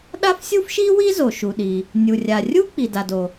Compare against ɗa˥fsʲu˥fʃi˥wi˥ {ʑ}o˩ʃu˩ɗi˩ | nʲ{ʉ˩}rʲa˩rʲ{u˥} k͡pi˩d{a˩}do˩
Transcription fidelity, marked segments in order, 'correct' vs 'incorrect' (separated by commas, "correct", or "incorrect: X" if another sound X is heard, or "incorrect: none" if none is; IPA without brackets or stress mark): incorrect: z, incorrect: u˩, correct, correct